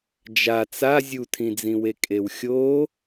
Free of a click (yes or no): yes